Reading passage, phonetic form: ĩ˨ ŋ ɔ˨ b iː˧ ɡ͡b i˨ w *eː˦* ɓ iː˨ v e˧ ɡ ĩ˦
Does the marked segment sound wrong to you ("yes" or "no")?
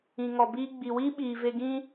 yes